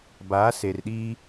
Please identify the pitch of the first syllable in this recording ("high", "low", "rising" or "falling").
rising